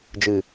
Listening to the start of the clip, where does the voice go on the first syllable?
low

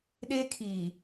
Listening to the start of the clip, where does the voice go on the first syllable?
high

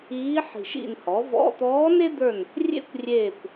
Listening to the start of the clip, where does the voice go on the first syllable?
rising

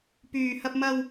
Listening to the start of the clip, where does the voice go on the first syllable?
low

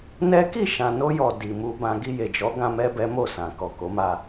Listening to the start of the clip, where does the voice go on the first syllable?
high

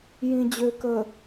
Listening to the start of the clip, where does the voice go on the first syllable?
low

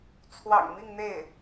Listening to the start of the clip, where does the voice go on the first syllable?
low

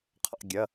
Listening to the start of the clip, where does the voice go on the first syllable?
falling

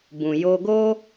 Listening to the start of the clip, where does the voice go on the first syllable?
low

